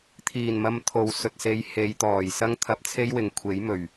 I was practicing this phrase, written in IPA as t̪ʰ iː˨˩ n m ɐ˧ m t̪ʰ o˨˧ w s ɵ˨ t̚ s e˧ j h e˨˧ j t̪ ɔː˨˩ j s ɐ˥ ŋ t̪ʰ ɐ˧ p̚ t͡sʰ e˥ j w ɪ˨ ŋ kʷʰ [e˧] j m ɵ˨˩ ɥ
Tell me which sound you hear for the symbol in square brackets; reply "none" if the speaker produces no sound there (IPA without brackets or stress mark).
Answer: e˨˥